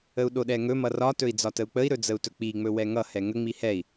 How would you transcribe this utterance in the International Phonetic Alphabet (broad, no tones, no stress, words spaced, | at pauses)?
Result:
əu̯ɗoɗɛŋɵ mʌrɒ tɵi̯d͡zɒtəu̯k͡pəi̯ ɾɵd͡zəu̯tɵk͡pi ŋ͡mɵwɛŋʌ hɛŋə ŋ͡mihɛi̯